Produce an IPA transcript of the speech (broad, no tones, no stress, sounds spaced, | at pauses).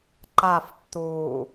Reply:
ǃ a f tː uː